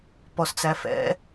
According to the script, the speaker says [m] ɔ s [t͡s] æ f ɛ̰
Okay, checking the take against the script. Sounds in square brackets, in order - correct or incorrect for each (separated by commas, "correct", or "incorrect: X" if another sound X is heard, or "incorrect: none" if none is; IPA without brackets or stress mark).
incorrect: p, correct